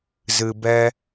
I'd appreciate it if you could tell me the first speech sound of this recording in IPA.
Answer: z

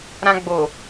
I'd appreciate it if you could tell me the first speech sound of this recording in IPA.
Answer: ɾ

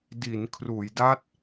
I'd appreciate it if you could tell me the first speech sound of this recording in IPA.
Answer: d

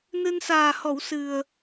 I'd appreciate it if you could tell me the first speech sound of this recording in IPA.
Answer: n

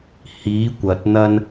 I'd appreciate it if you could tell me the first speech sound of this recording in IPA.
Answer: h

